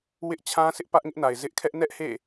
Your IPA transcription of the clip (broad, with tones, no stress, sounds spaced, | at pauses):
w ɪ˦ ʔ t͡ɕʰ ã˦ s ɪ˦ ʔ p ä˦ ʔ ŋ ɪ˦ ʔ n a˨ ɪ̯ z ɪ˦ ʔ kʰ ɛ˦ ʔ n ɛ˦ ʔ h ḛ˦˨